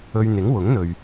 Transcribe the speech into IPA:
ɵ˧ ɥ n̪ ɪ˨˥ ŋ w ʊ˨˥ ŋ n̪ ɵ˨ ɥ

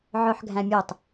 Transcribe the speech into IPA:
ʕ œ ħ ɡʱ æ̃ mʲ ɵ tˤ

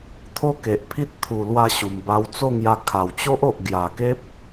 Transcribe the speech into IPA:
t̪ʰ o˦ k e˨ ʔ pʰ i˦ t̚ t̪ʰ u˨˩ l w a˧ ɕ u˨˩ m b a˧ w t͡s o˥˧ ŋ j a˧ kʰ a˨˩ w t͡ɕ o˦ ʔ o˨ ʔ ɡ j a˨˩ k e˦ p̚

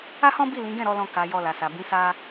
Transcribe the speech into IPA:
a˦ h ɔ̃˦ b i˦˨ l ĩ˨˦ ɡ ɛ̃˦˨ ɾ ɔ˨˦ l ɔ̃˧ k a˨ j ɔ˧ l a˨ s a˨ b ĩ˨˦ s a˧

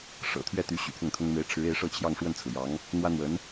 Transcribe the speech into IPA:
ʂ ɤ̰˨˩ t̪ʰ ɥ ɛ˥˩ t̪ y˧˥ ɕ y̰˨˩ pʰ ʊ˥˩ ŋ t̪ʰ ʊ˥ ŋ m e˧˥ ɪ̯ ʈ͡ʂʰ ɻ̩˧˥ e˧˥ ɪ̯ ʂ ɤ˥˧ t͡ɕʰ j ɑ˥˧ ŋ ʂ w ə˥˩ n t͡sʰ ɹ̩˩ j ɑ˧˥ ŋ | n̪ w ä˥ n̪ w ə˧˥ n

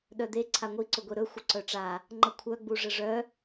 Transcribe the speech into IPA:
ɗ œ d̪ e ǀʰ a ŋʷ i ǀ ʊ ɡʷ e ɾ ɵ xʷ ə ǀ œ ʈ͡ʂ a | ŋ͡ǃ ə kʷʰ œ ɡ͡b u ʐ ə ʐ œ

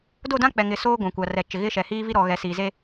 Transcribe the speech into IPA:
d o˦˨ d ã˦ k͡p ɛ˨ ŋ ɪ˨ s oː˦ ɡʷ ã˨ kʷ a˨ r ɛ˨ t͡ʃ ɪ˨ ɣ ɪ˦ ʃ ɛ˨ h iː˦ v i˦ ɾ ɔ˨ ɣ ɛ˨ s iː˨ z e˦

